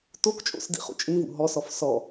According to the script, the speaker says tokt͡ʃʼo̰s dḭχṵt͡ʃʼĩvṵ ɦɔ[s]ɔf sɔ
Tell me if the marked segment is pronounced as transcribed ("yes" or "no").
yes